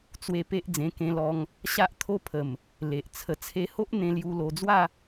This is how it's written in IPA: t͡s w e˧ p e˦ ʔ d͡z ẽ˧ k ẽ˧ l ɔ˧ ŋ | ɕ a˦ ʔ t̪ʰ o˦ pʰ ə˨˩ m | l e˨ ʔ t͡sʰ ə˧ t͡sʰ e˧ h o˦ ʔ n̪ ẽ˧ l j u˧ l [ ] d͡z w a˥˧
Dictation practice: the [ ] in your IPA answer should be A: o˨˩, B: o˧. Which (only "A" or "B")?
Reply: B